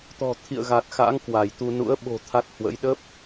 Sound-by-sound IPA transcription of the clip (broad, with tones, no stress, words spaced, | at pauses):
t̪ɔ̤˨˩ t̪ʰḭ˧˨ə̯ɣa˨˩t̚xa̰˧˥ŋ kwa˧˩jt̪u˧ nṵ˧˥ə̯ ɓo̤˨˩ t̪ʰa˦˥t̚hwə̰˧˥j ɗə˦˥p̚